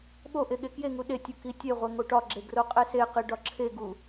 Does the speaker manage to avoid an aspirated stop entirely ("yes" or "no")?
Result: no